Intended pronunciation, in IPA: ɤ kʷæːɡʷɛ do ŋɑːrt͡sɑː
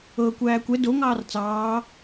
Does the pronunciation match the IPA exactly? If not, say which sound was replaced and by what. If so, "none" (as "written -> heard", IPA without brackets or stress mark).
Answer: ɡʷ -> kʷ